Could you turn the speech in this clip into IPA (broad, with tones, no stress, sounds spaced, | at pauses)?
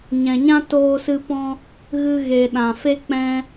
ɲ ɛ̃˨ ɲ ã˦ t oː˧ s ɨ˧ p ɔ̃˦ | ɣ ɨ˧ ɣ e˨ ɗ ã˨ f e˦ k͡p ɛ̃˧